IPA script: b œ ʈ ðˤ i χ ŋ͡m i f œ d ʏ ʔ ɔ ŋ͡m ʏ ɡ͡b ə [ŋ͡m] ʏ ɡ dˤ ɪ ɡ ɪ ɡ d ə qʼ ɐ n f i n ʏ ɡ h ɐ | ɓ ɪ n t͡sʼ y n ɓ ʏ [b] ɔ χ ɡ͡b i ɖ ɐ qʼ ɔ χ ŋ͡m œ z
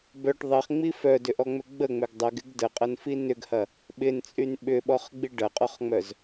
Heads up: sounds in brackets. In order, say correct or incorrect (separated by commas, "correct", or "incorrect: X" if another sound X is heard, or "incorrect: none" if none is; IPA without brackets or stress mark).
correct, incorrect: ɓ